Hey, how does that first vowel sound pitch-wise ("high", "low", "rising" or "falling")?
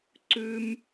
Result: high